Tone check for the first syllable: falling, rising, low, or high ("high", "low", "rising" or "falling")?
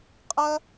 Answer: high